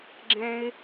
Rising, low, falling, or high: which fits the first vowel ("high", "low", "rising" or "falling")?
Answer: high